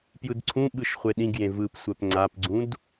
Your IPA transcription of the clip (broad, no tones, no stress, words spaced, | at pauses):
pjɯdǀʰũɓɯʃ χʷeɗĩɡjẽ vɯpsʷɛp ŋ͡ǀapɡ͡ǀũd